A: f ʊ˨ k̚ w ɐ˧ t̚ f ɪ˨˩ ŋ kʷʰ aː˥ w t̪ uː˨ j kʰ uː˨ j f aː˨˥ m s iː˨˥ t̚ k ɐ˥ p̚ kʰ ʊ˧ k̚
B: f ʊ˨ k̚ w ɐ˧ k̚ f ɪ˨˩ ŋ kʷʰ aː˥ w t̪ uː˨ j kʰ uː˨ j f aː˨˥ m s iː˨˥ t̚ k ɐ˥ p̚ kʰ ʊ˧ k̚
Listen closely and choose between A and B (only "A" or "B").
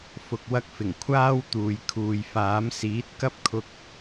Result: B